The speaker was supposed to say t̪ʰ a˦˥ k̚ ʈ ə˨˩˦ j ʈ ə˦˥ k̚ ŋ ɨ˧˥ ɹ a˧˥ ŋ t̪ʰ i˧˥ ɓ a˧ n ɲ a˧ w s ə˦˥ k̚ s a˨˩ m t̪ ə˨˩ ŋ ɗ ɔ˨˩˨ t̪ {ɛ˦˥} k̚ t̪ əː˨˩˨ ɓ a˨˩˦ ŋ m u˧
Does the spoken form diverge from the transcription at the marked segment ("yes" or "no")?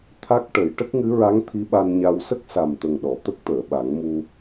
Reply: yes